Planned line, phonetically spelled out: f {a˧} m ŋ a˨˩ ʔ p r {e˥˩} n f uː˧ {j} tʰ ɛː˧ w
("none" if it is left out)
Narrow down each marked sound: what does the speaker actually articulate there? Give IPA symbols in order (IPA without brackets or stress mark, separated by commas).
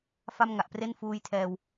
a˥˩, e˥˩, j